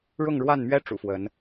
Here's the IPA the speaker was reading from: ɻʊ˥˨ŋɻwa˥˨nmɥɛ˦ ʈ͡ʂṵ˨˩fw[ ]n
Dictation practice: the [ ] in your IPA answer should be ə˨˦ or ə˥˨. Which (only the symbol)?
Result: ə˨˦